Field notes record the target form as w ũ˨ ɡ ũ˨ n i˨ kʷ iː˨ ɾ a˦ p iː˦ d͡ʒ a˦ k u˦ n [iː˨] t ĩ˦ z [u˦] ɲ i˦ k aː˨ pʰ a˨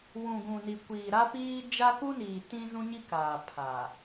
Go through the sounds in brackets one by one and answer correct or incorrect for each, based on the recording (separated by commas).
correct, incorrect